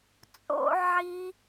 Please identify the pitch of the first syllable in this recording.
high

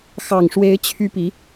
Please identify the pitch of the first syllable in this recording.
low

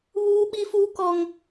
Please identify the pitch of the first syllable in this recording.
high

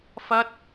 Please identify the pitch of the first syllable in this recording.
high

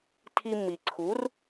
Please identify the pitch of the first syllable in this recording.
high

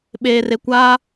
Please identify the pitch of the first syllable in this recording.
low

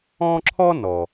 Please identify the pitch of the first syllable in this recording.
high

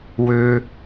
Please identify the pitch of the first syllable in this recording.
high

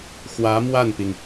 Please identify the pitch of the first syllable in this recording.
rising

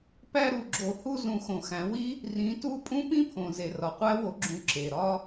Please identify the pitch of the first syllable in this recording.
falling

